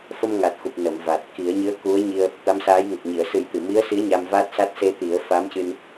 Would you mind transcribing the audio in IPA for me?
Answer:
fə˧mŋa˨˩t̚xu˨˩p̚ nə˨˩˨m va˨˩t̚ ki˨˩˦ə̯ɲɨ˧˥ə̯ku˧˥ə̯ɲi˧ə̯ | t̪a˧˥msaː˧˥jŋə˨˩k̚ ɲi˨˩˨ə̯ sɨ˨˩˦jt̪ɨ˨˩˨mi˧˥ə̯si˧˥ə̯ ɲa˧mvaː˦˥t̚sa˦˥t̚ se˧t̪i˨˩˦ə̯fa˧˥mcɨ˧n

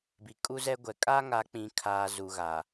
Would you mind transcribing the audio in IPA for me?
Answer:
bi˨kʼu˦zɛ˦ɡʷɛ˨ kʼa˦ŋa˨˦k͡pĩ˨kʰaː˨ zu˨ɣa˨

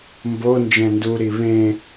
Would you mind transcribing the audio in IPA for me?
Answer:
mbo nd͡ʒɛ̃nduɾi βẽ

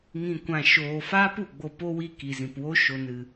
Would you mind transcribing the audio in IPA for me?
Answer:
ŋĩ˨kʷã˨ʃoː˨faː˦p u˨ɡ͡bo˧po˦wi˦˨ ki˨zĩ˨pwo˦ ʃo˨nɨ˨

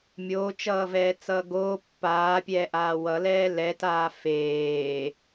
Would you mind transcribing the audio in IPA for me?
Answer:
mʲoːt͡ʃʌːvɛːt͡sʌː ɡoː pːaːpʲɛːʔaː wʌlɛː lɛtaː feː

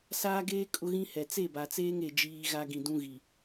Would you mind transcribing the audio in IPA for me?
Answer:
saː˦ɡeː˦ kʼʊ˦ɣĩ˦hɛ˨ t͡se˦˨ba˨t͡seː˦ŋ e˨ d͡ʒiː˦ɣa˦ ɡĩ˨dũ˦ɣi˨

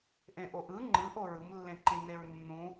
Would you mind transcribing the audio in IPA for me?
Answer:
ʔẽʔoʔɯ ŋ͡ǃɯʔo ɹɯmlːẽǃĩ neɹnːũ

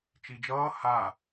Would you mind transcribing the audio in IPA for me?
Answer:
t͡ʃid͡ʒʌː ha

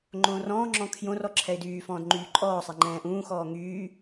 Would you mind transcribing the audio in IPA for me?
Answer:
ŋ͡ǃõːrɔ̃ːŋ͡ǁɔ̃ kʰjõr ɔǁʰɛɪ̯dyː fɔ̃ːdŋ͡ǃyːǃʼɔːsˤɛ ŋ͡ǃɛ̃ːʔũːxɔː ŋyː

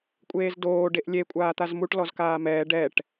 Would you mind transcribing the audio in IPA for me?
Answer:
kʷʼeːzdoː ɖeʔlʲe kʷʼaːt̪azmuʈ lɔzkaːmɛː ɖɛʈ

